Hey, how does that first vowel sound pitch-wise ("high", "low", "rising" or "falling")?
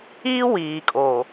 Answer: high